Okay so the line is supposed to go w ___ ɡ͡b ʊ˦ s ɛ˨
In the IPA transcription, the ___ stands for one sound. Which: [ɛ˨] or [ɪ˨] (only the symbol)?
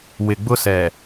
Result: ɪ˨